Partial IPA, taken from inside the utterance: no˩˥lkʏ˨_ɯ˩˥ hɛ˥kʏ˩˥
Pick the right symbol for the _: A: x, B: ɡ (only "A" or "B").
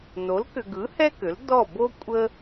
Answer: B